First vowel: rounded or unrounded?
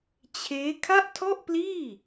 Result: unrounded